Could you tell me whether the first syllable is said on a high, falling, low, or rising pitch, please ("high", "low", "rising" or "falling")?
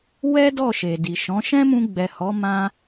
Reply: high